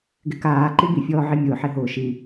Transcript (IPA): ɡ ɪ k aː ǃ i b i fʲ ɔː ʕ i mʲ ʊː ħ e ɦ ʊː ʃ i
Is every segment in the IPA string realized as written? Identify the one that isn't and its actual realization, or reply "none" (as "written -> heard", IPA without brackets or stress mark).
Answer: none